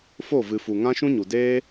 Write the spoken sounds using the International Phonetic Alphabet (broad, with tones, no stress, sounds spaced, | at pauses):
f o˦˨ v ɨ˨ f u˨ ŋ ã˦ ʃ ũ˦ ɲ u˨ d eː˦